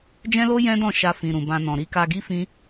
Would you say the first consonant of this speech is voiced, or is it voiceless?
voiced